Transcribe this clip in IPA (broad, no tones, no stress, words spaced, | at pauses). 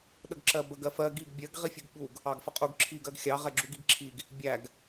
ɗəɡǁɜbəɡ ɜfɜ ɡiɡ bʲɜɡ ʁifʲuɡɓuɡ | ɑɡfəqʼuɡ ǁʰiɡ ɜɡxʲɑ ʁɛɡ͡ǁuɡiɡǁʰiɡ | bʲæɡ